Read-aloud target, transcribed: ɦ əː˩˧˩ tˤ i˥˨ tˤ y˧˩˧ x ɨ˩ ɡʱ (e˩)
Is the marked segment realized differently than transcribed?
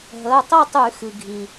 yes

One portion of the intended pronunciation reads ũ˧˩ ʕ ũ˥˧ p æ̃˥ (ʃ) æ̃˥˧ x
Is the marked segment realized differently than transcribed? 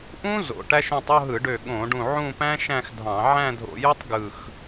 no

